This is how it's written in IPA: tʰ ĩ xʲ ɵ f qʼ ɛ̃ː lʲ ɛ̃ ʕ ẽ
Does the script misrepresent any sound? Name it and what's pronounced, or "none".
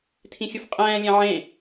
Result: none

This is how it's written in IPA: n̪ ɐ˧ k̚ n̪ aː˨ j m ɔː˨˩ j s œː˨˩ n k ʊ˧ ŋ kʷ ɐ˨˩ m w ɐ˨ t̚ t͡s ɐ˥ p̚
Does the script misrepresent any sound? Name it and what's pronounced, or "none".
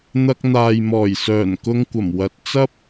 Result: none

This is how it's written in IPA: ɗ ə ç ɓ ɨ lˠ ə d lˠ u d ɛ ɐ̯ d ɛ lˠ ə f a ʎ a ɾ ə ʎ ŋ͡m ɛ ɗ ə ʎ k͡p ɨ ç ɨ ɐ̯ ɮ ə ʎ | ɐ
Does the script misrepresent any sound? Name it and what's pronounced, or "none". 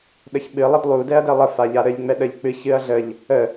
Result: ɐ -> ə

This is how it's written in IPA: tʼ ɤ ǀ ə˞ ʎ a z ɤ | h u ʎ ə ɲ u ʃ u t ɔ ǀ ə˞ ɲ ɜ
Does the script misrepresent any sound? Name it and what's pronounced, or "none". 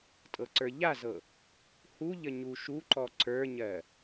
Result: t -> ǃ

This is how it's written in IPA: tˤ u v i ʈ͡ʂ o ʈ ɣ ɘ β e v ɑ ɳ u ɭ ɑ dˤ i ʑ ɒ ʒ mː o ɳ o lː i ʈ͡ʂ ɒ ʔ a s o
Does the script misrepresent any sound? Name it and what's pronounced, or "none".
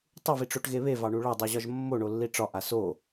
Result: ɘ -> e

